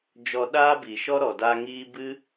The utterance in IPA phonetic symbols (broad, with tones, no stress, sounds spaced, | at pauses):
d͡ʒ ɔ˧ ɗ aː˦ b i˨ ʃ ɔ˦ ɾ ɔ˨ d a˧ ŋ iː˧ b ɨ˦